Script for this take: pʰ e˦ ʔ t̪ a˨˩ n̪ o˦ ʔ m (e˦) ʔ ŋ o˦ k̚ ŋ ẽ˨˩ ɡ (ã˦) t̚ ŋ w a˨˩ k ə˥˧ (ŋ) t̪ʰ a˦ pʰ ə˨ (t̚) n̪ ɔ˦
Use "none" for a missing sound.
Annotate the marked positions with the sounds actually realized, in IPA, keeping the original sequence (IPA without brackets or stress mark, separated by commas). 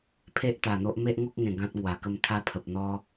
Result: e˦, ã˦, m, p̚